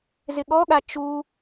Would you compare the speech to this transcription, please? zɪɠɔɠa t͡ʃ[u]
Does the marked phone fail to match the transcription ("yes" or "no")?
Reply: no